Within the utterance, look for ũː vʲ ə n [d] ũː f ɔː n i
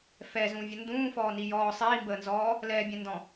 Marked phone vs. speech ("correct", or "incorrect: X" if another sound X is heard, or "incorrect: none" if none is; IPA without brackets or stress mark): correct